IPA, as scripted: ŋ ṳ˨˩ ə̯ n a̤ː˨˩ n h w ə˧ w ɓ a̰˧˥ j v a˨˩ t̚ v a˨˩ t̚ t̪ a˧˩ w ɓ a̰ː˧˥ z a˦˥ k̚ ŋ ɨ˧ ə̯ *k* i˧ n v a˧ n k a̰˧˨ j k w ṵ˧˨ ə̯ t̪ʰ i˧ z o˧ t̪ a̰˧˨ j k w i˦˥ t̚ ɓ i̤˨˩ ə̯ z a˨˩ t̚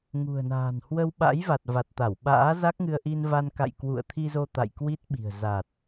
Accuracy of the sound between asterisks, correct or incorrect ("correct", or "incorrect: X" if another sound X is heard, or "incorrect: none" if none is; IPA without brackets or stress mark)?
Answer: incorrect: ʔ